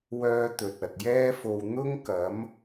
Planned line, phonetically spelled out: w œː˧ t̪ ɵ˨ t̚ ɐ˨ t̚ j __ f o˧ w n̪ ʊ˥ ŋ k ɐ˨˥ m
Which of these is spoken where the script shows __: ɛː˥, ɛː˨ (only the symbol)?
ɛː˥